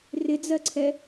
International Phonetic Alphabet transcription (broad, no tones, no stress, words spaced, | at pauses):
rɪd͡zɜǀʰɛ